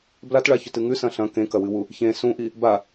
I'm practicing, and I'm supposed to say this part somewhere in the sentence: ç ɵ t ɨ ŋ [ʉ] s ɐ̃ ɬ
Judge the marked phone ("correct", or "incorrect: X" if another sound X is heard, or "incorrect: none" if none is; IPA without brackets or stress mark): correct